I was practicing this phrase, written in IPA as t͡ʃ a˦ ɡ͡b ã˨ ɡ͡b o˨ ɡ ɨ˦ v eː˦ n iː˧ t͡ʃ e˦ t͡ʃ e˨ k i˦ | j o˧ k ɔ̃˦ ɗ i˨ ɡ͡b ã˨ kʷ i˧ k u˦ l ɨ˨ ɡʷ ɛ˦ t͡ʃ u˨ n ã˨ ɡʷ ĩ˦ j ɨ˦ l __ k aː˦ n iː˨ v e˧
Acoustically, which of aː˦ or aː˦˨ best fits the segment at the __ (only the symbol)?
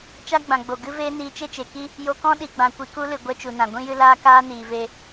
aː˦